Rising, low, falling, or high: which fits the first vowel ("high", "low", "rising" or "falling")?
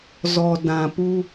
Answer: low